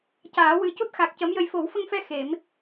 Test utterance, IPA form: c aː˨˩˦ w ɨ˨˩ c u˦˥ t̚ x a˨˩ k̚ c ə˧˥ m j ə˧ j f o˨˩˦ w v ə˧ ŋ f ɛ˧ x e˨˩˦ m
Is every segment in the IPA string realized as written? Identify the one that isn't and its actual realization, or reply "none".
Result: v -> f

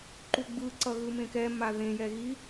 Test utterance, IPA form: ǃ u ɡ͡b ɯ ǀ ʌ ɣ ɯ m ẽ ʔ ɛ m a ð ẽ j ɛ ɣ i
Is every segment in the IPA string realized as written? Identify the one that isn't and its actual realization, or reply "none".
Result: ʔ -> k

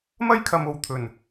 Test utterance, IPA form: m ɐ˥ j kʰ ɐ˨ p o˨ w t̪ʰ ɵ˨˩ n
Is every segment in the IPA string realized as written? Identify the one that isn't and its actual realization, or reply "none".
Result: p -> m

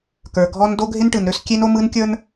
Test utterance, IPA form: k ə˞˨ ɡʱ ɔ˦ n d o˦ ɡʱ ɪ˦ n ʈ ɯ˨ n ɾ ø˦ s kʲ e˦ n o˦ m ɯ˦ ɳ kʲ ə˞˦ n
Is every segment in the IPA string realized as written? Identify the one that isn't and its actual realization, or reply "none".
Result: ɳ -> n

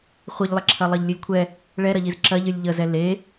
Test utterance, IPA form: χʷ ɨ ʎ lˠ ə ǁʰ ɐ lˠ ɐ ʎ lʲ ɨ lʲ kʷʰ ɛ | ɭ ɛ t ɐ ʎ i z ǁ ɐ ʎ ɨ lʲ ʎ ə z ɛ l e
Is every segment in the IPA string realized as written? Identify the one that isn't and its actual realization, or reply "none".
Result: t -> ɾ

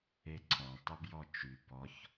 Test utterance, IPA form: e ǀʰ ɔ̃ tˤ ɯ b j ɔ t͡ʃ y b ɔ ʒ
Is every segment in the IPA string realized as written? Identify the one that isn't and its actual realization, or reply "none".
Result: ʒ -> ç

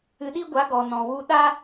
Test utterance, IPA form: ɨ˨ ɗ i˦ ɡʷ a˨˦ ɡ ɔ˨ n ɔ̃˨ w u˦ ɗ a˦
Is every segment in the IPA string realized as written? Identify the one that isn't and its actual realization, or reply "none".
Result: none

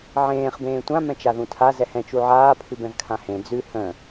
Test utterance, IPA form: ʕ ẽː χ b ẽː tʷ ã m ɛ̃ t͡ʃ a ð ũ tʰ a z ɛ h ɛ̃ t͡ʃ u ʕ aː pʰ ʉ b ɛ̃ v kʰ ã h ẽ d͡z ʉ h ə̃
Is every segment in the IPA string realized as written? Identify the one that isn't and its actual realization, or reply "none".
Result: none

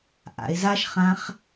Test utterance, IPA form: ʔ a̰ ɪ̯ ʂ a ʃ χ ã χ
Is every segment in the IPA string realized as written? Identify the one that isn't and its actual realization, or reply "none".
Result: ʂ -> z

